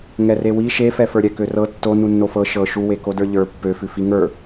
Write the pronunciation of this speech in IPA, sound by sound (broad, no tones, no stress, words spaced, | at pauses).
ŋɛrewi ʃefɛ fə˞ɾʲɛkørɤ tːo nunːofɤ ʃɤ ʃu wekodə˞ʎə˞ pːøfʉ fiŋə˞